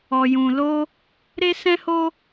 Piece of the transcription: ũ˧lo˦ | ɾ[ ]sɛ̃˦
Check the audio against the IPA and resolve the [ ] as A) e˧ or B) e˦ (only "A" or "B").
B